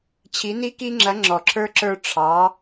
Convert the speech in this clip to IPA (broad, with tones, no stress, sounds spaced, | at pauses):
t͡ɕʰ i˧˥ n i˥ k i˥ ŋ͡ǁ ɐ˧˥ ŋ͡ǁ ɔ˧˥ ǁʰ ə˞˥ ǁ ə˞˥ ʈ͡ʂʰ ɑ˧˥